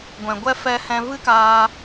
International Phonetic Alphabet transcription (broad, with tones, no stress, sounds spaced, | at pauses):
ɡʷ ɛ̃˨ ɡʷ ɛ˦ f ɛ˧ h ɛ̃˧ v ɨ˦ k aː˧